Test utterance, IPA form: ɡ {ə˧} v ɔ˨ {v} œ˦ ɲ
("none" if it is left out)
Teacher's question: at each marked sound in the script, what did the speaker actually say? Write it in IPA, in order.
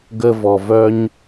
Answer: ə˧, v

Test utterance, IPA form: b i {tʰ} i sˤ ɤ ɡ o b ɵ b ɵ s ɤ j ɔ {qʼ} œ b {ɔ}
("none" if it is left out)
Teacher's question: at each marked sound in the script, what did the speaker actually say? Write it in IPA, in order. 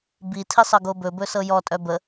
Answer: tʰ, tʼ, ə

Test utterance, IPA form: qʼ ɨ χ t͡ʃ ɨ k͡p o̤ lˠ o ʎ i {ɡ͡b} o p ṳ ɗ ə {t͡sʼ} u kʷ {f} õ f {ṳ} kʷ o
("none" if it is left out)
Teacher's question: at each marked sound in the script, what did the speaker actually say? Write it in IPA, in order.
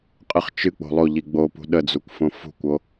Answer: ɡ͡b, d͡z, f, ṳ

